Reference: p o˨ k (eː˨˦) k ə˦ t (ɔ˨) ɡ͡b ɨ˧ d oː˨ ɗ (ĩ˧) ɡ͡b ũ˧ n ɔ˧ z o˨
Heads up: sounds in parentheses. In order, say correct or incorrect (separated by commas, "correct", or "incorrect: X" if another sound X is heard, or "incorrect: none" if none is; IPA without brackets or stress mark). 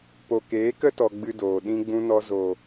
correct, correct, correct